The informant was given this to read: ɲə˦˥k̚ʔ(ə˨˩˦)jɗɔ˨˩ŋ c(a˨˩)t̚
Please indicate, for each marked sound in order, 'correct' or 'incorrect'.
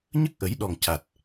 correct, correct

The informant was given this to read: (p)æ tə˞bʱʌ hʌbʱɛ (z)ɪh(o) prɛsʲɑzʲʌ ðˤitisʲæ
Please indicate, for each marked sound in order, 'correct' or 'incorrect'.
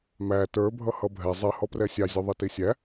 incorrect: m, incorrect: zˤ, incorrect: ɔ

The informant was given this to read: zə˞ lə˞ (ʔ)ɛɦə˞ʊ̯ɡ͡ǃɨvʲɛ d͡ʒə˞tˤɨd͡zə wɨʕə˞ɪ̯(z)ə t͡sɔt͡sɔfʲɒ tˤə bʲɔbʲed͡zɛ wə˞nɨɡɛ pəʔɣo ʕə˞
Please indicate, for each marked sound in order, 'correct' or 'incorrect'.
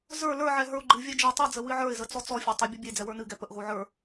incorrect: ʕ, correct

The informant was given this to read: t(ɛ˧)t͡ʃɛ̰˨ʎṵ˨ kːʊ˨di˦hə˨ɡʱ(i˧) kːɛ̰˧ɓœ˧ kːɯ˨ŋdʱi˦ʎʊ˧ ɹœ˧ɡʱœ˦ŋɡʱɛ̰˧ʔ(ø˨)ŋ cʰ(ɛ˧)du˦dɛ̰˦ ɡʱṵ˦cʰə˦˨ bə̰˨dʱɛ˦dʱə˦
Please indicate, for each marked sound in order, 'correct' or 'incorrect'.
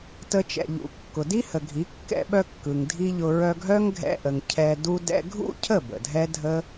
incorrect: ə˧, incorrect: i˨˦, incorrect: ə˨, correct

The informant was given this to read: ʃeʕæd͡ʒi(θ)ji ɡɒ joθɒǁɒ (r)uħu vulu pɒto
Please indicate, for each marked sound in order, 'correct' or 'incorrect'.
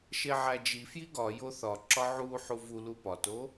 incorrect: f, incorrect: ʕ

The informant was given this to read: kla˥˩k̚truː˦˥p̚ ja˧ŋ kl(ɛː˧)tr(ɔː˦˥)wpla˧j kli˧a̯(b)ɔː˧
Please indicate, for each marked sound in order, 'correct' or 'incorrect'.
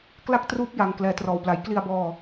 correct, incorrect: ɔː˧, correct

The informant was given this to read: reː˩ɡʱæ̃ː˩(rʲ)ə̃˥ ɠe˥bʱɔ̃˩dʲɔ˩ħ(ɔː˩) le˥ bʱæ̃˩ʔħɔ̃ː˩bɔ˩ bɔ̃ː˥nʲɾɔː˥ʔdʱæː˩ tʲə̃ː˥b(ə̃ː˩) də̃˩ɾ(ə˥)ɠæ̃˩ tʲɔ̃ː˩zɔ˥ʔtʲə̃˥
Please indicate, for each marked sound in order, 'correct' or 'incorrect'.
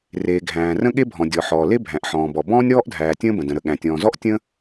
incorrect: r, correct, incorrect: ə̃˩, incorrect: ə˩

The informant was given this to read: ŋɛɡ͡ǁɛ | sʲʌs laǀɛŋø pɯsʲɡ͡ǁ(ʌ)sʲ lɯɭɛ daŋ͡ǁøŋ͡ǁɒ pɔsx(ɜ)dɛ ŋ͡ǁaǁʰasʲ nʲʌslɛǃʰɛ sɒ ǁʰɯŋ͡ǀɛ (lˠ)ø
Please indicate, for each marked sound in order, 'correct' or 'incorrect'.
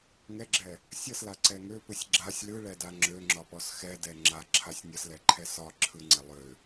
incorrect: a, incorrect: ɛ, correct

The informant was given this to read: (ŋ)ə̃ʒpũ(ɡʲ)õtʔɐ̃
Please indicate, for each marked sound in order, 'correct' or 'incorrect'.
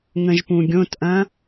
correct, correct

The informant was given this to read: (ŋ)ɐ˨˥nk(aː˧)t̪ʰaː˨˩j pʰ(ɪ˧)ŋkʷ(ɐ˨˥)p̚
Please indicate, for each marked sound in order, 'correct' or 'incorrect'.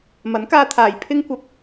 incorrect: m, correct, correct, incorrect: ɐ˨

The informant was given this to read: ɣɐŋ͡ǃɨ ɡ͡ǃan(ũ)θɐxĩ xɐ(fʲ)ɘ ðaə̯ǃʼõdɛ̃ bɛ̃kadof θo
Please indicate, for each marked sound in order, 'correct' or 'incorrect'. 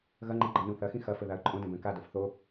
correct, incorrect: f

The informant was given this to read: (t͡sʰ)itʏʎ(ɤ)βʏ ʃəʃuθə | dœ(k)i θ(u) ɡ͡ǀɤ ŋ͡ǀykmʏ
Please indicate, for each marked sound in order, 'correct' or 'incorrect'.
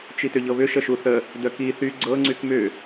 incorrect: t͡ʃ, correct, correct, incorrect: y

